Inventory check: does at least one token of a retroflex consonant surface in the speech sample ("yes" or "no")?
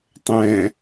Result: no